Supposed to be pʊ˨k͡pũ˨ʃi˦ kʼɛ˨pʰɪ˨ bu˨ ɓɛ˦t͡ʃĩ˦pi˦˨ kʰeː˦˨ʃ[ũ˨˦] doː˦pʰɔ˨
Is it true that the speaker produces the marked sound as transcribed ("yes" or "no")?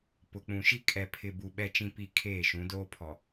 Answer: yes